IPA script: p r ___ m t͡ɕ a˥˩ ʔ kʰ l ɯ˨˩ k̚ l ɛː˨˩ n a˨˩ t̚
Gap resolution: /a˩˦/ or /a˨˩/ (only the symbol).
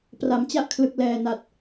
a˩˦